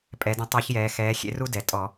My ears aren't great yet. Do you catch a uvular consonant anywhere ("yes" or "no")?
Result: no